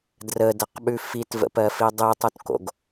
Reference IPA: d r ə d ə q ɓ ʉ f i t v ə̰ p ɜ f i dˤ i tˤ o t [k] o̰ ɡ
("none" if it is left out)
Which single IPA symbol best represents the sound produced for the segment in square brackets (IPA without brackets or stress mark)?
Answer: k